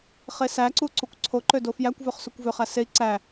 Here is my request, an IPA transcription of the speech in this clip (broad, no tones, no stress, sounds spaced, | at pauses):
χ e s æ ǀ u ǀ u kʷ ǀʰ o ǃ ø d o f j æ kʷ v ø χ s u kʷ v ø χ æ s e i̯ ǀ æ